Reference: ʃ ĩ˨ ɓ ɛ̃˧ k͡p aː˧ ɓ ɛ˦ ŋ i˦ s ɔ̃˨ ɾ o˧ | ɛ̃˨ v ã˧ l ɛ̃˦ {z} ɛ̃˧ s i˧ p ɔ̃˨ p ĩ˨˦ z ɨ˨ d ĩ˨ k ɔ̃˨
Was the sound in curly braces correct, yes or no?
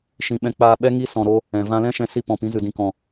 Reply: no